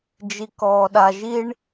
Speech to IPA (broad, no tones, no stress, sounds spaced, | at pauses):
d͡ʒ i k ɔː ɗ a ʒ i ɳ